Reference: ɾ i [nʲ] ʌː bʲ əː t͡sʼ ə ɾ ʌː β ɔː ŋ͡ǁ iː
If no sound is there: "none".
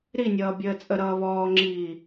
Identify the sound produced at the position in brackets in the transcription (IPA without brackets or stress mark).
nʲ